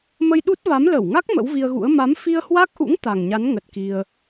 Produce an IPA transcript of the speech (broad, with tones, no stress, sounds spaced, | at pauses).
m ə˧ j ɗ u˦˥ t̚ v a˨˦ m l ə˧˩ w ŋ a˦˥ k̚ m ə̰˧˥ w v i˧ ə̯ ɣ ṵ˧˥ ə̯ m a˨˦ m f i˧ ə̯ h w a˦˥ k̚ ʔ ṵ˧˥ ŋ t̪ a˨˩ ŋ ɲ a˨˦ n ŋ ə˨˩ t̚ k i˧ ə̯